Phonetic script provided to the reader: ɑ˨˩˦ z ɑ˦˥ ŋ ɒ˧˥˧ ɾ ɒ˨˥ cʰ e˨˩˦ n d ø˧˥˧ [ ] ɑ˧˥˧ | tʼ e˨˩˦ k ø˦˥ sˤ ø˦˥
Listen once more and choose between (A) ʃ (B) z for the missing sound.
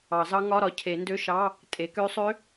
A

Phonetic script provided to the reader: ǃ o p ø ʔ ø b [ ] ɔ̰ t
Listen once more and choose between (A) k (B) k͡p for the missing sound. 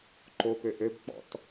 B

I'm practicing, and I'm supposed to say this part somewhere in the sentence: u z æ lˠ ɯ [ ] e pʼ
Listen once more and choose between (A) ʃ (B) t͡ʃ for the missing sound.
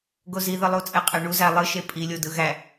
A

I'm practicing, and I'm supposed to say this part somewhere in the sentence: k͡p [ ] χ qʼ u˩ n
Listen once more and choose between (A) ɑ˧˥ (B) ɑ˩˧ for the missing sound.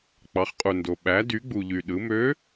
B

